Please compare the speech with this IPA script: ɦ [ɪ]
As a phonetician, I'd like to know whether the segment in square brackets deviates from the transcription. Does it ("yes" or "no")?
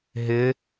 no